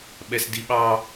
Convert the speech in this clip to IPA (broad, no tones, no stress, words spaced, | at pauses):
ɓɛsdiɓɑ